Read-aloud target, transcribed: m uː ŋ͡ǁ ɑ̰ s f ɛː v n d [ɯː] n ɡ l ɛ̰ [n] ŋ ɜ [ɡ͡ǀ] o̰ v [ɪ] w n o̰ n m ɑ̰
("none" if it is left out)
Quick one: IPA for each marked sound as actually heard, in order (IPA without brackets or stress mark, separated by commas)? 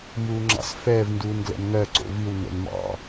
uː, n, ǀ, i